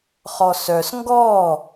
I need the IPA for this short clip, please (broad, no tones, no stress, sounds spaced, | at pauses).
χ ɔ s œ s ŋ ɡ ɔ